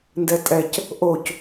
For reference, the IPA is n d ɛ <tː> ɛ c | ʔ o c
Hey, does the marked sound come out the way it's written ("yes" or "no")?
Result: no